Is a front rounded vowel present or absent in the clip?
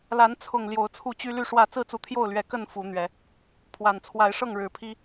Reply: present